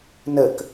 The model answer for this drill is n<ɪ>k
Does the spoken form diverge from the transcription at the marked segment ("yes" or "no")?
yes